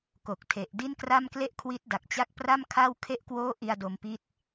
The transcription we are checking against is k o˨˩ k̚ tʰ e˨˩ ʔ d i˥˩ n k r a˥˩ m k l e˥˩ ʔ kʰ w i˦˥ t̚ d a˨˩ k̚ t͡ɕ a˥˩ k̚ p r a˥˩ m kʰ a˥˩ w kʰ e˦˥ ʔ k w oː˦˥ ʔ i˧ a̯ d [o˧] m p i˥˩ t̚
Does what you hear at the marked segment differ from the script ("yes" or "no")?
no